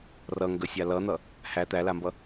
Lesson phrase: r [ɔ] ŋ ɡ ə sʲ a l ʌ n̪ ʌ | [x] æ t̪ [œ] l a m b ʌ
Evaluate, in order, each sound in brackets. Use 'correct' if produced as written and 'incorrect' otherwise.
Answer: incorrect, incorrect, incorrect

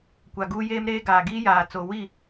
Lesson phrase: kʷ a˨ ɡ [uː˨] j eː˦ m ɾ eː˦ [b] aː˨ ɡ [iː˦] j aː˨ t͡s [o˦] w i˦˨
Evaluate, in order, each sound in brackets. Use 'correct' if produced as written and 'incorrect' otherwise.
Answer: incorrect, incorrect, correct, incorrect

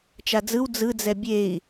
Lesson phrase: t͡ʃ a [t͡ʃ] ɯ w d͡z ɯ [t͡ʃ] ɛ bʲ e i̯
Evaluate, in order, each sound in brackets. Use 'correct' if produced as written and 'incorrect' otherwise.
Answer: incorrect, incorrect

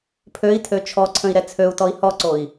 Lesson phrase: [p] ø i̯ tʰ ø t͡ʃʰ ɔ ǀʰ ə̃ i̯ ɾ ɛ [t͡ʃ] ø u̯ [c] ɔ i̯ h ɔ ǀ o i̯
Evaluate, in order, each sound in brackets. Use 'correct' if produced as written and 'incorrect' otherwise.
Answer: incorrect, incorrect, incorrect

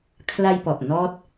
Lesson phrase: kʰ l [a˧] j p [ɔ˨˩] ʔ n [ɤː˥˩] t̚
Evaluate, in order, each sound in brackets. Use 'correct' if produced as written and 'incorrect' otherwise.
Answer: correct, correct, incorrect

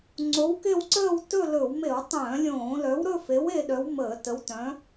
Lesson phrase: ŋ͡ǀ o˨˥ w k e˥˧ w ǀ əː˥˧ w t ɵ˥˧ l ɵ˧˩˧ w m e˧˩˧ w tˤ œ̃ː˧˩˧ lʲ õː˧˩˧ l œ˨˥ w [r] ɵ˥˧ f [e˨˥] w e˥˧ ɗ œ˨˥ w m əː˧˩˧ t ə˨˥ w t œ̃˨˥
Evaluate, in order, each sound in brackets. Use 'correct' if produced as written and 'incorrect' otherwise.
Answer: incorrect, correct

